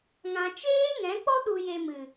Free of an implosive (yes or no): no